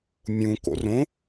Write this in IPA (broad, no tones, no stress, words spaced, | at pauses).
mʲũ ko̰rõ